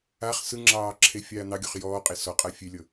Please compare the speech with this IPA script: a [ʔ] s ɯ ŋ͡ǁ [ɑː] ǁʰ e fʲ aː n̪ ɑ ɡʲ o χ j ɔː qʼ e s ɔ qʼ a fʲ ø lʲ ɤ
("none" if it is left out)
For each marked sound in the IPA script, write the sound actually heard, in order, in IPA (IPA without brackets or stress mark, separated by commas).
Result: χ, ɑː